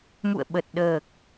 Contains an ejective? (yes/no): no